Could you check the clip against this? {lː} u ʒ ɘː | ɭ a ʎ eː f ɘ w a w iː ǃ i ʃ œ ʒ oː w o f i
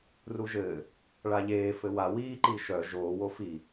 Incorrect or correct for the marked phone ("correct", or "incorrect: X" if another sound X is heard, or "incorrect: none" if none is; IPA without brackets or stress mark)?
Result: incorrect: r